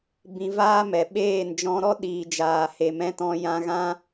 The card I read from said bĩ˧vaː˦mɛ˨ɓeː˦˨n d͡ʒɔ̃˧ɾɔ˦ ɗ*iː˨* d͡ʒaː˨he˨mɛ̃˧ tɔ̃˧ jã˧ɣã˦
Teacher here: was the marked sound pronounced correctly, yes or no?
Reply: yes